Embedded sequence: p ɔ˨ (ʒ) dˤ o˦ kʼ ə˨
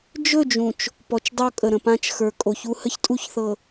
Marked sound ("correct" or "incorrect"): incorrect